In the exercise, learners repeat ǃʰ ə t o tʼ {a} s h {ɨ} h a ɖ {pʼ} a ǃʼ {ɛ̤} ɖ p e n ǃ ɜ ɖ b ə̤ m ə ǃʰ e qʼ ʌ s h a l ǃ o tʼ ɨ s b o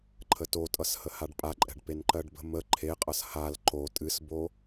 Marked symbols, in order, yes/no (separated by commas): no, no, yes, yes